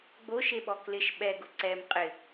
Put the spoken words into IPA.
ɡ͡boʃeɓɔ klɪʃ ɓɛɡʊ ǀɛm qʼɪ

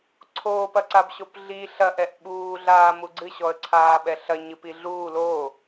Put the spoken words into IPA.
ǀʰoːpɐǀab ɕopɮi ɬɐʔɛʔ ɓuːɮaː muɡ͡ǀɨɕɔə̯ ǀʰaːɓɛɬɐ ɲɨpiɮuː lo

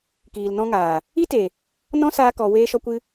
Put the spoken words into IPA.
kiː˨lnɔ̃˧ŋaː˨ | i˦te˨ | nɔ̃˦saː˧kɔ˨ weː˦ʃɔ˦kʷɨ˦

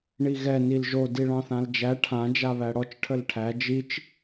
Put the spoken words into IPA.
ɳiɣɛ nilʒo diɭɑ̃θãld͡ʒæ ʈʰã d͡ʒaβæɽɔt͡ʃ ʈʰəlʈʰæ d͡ʒit͡ʃ

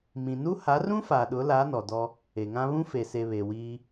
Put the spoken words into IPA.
mĩ˨nu˦ ha˨˦rũ˦ fa˨ɗʊ˨˦la˨˦ nɔ˨dɔ˦ | e˨ŋã˦ βũ˦fe˨se˨ βe˨wiː˦

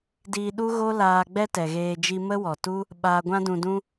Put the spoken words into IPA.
diː˧ɗu˦ɣo˦laː˧ ɡ͡bɛ˦tɛ˨ɣeː˧ d͡ʒi˧mə˦wɔ˨tu˦ | ɓaː˧ɡʷã˦dũ˧dũ˦

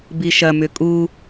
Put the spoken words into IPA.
biʃɐmʏ kʼu

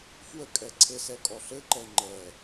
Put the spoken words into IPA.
fwəkʼɛ ǀʰɘsɛkʼɔ ɬɘǃɛ ŋ͡ǃɛ

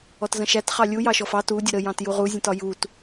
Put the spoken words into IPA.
ɔtzə̃ʃæt χɑlʲu jɑʃɔfɑ tu dʲəɾə jɑ̃tjuʁu zʲə̃tɒjut

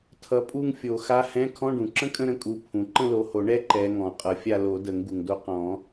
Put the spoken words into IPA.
tʰʌ˨˦ pʼu˥˧ŋfʲo˨˩˦xa˧˥˧ hɛ̃˧˥˧ kʰɔ̃˧˥˧ɖũ˩ǁə̃˥kʼə̃˥˧ ɾə̃˥kʼu˨˦ pʰũ˩ ǃə̃˥˧lo˨˦ho˨˩˦ ɳɛ˥ ǃɛ˨˦ ŋɔ̃˨˩˦ qʼʌ˨˩˦fʲa˥˧ lo˨˩˦də˨˩˦ŋ ɡu˩ŋdo˥ qɔ̃˨˩˦

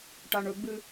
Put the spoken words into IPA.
ʈaɳɵɡ͡bɨ

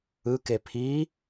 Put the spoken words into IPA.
ɯke pʰi

